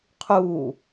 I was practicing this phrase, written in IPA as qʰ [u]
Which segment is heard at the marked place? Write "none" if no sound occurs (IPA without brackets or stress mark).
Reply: u